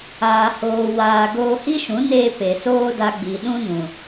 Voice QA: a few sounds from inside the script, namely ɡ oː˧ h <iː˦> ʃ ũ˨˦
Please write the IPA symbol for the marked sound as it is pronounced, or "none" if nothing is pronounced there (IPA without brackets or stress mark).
i˦